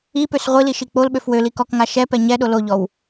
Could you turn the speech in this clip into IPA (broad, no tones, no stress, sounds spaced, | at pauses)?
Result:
i p ø s ʁʷ i l i ʃ i k͡p o l ɓ ø f w ø l i k ɔ k ŋ a ʃ ɛ p ɛ ɲ ɛ ɗ o l o ʎ ɔ w